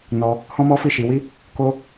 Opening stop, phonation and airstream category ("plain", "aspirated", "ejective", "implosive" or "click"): plain